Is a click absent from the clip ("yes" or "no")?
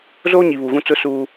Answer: yes